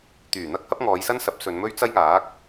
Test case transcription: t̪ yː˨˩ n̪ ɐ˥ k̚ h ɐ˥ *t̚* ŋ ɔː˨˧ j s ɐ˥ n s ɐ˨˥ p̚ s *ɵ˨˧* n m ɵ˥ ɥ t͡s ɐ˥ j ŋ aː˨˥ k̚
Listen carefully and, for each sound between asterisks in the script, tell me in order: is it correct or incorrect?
incorrect: p̚, correct

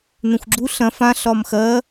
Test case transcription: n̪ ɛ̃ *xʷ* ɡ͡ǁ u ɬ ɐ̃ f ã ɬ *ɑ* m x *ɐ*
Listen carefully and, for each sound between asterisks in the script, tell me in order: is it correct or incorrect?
correct, incorrect: ɒ, correct

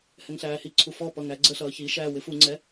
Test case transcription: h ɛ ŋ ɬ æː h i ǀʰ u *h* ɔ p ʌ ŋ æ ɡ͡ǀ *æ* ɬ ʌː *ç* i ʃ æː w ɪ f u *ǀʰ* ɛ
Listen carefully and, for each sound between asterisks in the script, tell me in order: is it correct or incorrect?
incorrect: f, incorrect: ə, correct, incorrect: ŋ͡ǀ

